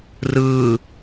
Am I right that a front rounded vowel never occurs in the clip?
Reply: yes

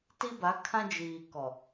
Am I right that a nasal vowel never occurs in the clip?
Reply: no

